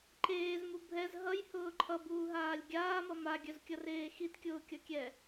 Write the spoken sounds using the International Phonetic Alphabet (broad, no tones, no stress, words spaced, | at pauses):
ǃeːzmu bʱɛz ɦʌjhʊː ǃʰʌbuːɦaːlʲ ɡʲaːmʌ maɡʲœzkʲʌreː xitkʲʊːkʲʌkʲɛ